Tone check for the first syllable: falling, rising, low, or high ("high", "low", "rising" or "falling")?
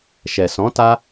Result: low